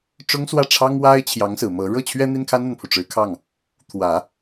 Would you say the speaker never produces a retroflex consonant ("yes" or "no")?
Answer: no